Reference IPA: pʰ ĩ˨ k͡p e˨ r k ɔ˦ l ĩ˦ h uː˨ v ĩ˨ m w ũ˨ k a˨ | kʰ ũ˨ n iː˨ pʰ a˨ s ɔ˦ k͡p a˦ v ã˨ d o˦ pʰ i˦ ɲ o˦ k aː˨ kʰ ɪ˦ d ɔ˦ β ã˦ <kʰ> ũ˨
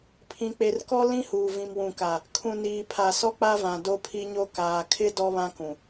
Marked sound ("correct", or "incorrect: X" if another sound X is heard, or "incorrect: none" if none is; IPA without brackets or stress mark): incorrect: k